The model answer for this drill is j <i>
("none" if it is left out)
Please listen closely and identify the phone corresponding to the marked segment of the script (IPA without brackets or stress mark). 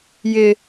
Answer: ɪ